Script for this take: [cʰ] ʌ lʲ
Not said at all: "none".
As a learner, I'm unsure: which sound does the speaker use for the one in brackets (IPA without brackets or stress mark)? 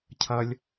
cʰ